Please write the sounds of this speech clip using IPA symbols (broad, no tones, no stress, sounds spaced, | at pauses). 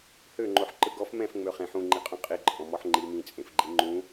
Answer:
h ø ŋ͡ǃ o ħ ǃ ɯ ɡ ɔ f m ɛ̃ f ŋ͡m ø χ ẽ ħ ũ ŋ͡ǃ i qʼ ũ qʼ i ǃʼ ɔ̃ m ɔ ħ ŋ͡ǃ i m ĩ t͡sʼ ẽ f ɡ͡ǃ i ŋ͡ǃ ũ